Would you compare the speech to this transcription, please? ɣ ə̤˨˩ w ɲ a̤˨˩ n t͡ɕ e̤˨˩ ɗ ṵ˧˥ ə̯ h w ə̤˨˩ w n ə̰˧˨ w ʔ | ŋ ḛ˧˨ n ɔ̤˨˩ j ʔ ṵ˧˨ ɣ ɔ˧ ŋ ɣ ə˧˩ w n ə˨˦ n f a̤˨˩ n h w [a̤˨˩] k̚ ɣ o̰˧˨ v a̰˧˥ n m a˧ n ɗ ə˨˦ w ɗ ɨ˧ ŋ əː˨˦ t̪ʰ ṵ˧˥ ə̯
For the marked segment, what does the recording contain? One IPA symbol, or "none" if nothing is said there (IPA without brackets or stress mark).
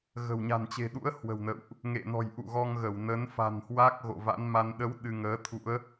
a˦˥